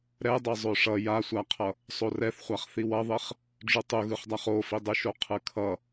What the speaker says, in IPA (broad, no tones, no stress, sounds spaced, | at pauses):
ɾ ɛ dˤ e zˤ o ʂ ʌ j a sʷ a qʰ ʌ | sˤ o r ɛ θ χʷ a χ θ i w ʌ ðˤ e χ | ɖ͡ʐ u tˤ u ɣ ɯ χ dˤ a χ o f i dˤ ɯ ʃ o qʰ ɯ kʰ ʌ